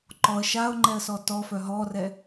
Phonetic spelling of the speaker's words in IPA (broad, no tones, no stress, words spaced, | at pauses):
ǃɔə̯ ʃaʊ̯ŋ͡ǃɛə̯sɔ tɔfœ ɦɔrɛ